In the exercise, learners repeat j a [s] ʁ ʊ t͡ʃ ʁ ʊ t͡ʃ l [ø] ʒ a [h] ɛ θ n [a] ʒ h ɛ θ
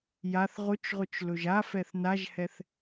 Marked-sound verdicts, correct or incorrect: incorrect: θ, incorrect: ɵ, incorrect: f, correct

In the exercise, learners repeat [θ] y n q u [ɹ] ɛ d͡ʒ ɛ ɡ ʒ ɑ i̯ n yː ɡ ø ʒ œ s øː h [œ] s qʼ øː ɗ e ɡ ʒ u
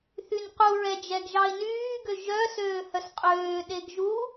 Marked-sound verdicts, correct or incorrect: correct, correct, correct

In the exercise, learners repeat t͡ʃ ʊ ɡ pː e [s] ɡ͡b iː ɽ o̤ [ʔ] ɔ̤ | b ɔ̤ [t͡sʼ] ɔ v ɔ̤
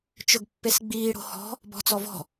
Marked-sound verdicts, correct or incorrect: correct, incorrect: h, incorrect: t͡s

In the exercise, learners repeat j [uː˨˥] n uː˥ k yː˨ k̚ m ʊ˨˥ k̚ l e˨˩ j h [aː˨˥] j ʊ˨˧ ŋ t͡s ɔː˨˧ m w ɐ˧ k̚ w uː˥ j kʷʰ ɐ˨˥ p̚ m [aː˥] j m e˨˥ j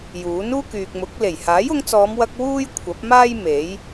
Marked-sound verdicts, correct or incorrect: correct, correct, correct

